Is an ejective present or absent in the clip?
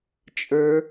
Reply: present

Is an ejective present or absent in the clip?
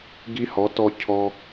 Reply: absent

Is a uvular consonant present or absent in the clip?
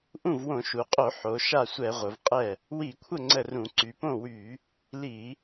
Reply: present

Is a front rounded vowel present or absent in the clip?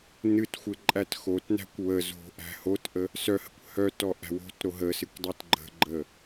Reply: present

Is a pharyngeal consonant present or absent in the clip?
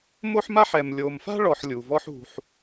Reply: present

